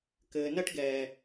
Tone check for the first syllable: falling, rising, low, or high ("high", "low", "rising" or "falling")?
low